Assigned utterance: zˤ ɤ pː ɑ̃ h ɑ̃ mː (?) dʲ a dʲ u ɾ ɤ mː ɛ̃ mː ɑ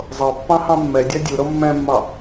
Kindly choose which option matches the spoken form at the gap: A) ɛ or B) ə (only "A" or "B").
A